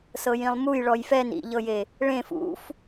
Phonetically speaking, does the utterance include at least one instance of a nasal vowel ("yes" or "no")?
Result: yes